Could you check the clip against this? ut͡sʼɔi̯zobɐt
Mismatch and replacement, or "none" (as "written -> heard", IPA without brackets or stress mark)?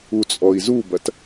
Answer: o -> u